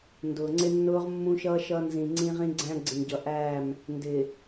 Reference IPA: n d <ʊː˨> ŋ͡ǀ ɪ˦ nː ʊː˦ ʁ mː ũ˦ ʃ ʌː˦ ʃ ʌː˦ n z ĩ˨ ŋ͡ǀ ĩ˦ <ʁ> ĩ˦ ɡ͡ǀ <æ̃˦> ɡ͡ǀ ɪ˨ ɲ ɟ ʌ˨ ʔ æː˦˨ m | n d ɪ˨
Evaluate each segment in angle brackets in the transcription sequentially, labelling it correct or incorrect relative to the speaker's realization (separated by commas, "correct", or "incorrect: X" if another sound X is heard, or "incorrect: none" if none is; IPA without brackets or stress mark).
correct, correct, correct